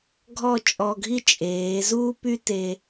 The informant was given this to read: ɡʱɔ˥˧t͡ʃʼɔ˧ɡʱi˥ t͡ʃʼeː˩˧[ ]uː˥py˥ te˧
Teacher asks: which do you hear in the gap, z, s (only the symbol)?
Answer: z